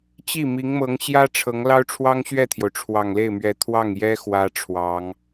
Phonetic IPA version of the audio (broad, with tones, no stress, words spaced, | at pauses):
t͡ɕi˥˩mi˧˥ŋmɤ˧˥ŋɕjä˥ ʈ͡ʂʰɤ˧˥ŋlɑ˥ʊ̯ ʈ͡ʂʰwɑ˥ŋɕɥɛ˥˩t̪ʰjo˩ʊ̯ ʈ͡ʂʰwɑ˨˩ŋle˥˩ɪ̯mɥɛ˧˥ t̪ʰwɑ˥˩ŋjɛ˥ xwä˥ʈ͡ʂʰwɑ˧˥ŋ